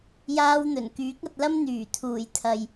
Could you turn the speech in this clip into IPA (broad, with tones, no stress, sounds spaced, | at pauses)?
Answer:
j aː˧ w n̪ ɵ˨˩ n k yː˨˥ k̚ ɐ˧ t̚ l ɐ˥ m n̪ yː˨˩ t̪ʰ uː˨˩ j t̪ʰ ɐ˨ j